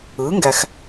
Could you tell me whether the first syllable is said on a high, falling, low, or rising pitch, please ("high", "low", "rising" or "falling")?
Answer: rising